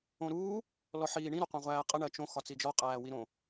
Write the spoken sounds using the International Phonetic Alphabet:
õ ɾ uː | l ɔ ħ iː ɳ ĩ ɾ o qʷ æ̃ ʁʷ æː qʼ ɘ ɳ ɜ t͡ʃ õ x ɒ t͡s i d͡ʒ ɔ qʼ æː w i ɾ õ

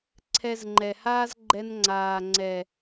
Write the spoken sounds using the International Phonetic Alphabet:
ǀʰ ɛ˧ z ŋ͡ǃ ɛ˨ h aː˦ z ɡ͡ǃ ɛ˧ n ŋ͡ǀ aː˨ ŋ͡ǀ ɛ˨

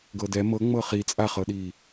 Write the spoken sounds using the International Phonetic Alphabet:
ɡ ɤ d ɛ m ɤ ŋ͡m ɤ χ i t͡sʼ a χ ɤ ɗ i

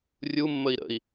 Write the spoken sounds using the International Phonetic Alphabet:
rʲ u mː ə i̯ ɾ ə̰ i̯

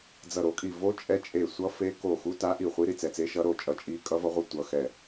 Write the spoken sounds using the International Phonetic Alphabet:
d͡z ʌ˧˩ ɾ o˧˩ kʼ i˧˩ v o˧˥ t͡ʃʼ ɛ˧˥ t͡ʃʼ e˧˩ sʷ ʌ˧˥ f e˧˥ k o˧˩ x u˧˥ t a˧˥ ʔ i˧˩ χʷ i˧˥ ɾ i˧˩ t͡s ɛ˧˩ t͡s e˧˥ ʃ ʌ˧˥ ɾ o˧˩ t͡ʃʼ ʌ˧˩ t͡ʃʼ i˧˥ kʼ ʌ˧˥ v ʌ˧˥ ʁʷ ɯ˧˩ tʷ ʌ˧˩ x ɛ˧˩

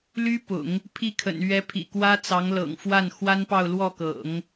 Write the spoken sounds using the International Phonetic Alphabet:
l y˥ p ʊ̰˨˩˦ ŋ | pʰ i˥˩ kʰ ə̰˨˩ n ɥ ɛ˧˥ pʰ ḭ˨˩ k w ä˥ t͡s ɑ˧˥ ŋ l ɤ̰˨˩ ŋ f w a˥˩ n x w a˥ n p ɑ˥˧ ʊ̯ l w ɔ˥˩ k ɤ̰˨˩˦ ŋ

